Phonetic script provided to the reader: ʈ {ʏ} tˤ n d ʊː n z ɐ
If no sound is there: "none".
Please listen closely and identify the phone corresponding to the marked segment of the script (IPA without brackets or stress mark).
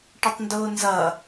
ɪ